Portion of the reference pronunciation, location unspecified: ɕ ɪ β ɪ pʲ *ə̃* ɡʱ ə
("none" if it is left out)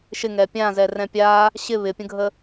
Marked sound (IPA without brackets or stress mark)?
ə̃